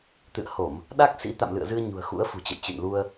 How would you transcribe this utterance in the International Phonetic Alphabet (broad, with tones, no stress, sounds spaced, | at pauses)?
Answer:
t̪ ɨ̰˧˨ ə̯ h o˧˩˨ m | ɗ a˦˥ k̚ s ḭ˧˥ t̪ a̰˧˨ m l ɨ̰˧˨ ə̯ z ɨ˧ ə̯ ɲ ṳ˨˩ ə̯ x ṵ˧˥ ə̯ f ṳ˨˩ t͡ɕ ə̰˧˨ j t͡ɕ ɨ̰˧˨ n l u˧ ə̯